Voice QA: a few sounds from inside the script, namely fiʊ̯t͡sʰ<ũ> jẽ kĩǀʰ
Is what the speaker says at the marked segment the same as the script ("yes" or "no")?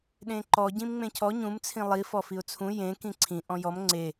yes